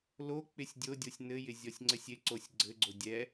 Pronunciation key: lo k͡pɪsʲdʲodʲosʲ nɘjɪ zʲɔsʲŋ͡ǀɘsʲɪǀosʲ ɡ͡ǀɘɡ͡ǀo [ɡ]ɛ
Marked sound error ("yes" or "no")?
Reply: yes